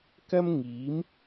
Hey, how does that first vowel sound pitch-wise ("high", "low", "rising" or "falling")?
high